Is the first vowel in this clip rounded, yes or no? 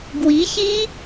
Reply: no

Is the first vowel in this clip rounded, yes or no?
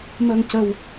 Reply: no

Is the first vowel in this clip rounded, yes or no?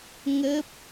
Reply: no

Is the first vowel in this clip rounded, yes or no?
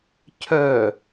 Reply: yes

